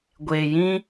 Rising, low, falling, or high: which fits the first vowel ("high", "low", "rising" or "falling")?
low